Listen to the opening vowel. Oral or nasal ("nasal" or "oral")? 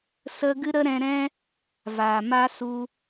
oral